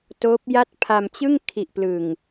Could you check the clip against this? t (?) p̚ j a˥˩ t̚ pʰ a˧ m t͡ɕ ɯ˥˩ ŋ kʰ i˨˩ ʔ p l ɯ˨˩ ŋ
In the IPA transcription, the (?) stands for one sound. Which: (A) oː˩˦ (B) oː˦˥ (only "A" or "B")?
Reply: B